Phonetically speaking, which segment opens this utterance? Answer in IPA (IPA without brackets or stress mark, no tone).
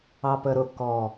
ɑ